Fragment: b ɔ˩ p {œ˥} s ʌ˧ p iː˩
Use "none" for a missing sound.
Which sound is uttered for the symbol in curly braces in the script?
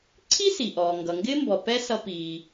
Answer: ɛ˥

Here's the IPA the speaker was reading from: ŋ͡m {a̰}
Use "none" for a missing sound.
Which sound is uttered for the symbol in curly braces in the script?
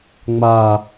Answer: a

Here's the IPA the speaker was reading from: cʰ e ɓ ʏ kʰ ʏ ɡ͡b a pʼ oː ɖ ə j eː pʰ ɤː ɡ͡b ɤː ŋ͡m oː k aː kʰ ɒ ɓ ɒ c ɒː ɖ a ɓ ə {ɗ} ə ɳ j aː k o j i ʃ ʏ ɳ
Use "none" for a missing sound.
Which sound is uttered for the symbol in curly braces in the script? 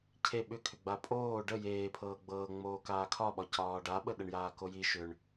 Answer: ɗ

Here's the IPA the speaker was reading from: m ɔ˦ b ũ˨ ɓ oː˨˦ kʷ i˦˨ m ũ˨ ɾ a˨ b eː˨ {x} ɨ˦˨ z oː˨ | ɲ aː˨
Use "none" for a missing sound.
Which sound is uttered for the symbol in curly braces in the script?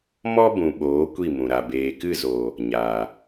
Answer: k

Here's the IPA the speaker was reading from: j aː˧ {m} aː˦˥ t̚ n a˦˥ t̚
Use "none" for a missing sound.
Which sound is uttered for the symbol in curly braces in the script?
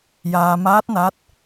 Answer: m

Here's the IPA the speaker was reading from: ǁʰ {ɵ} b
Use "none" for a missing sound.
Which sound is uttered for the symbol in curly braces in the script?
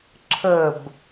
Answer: ə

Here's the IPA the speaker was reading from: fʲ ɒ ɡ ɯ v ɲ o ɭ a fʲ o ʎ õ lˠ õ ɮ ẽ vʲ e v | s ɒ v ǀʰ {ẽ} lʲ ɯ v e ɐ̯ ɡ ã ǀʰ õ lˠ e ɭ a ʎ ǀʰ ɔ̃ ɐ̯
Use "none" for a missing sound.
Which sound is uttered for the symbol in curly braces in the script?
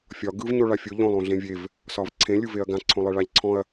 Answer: ẽ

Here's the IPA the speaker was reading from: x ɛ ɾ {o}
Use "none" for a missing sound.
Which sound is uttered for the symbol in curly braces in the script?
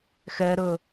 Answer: ɵ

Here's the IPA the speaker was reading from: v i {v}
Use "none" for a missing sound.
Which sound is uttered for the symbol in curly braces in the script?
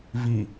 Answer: none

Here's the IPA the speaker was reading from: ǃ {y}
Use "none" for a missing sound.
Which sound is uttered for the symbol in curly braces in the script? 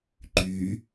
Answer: y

